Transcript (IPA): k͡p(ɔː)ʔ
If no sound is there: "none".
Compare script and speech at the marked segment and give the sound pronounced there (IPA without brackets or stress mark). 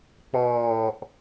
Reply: ɔː